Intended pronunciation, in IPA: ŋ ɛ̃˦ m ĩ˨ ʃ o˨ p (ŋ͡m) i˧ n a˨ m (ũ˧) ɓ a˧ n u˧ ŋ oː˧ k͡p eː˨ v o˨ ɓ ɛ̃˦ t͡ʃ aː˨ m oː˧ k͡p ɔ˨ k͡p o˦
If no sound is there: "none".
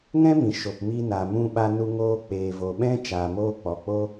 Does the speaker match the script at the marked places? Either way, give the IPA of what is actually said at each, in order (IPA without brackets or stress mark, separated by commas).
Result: m, ũ˧